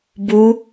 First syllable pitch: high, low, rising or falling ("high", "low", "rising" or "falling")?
rising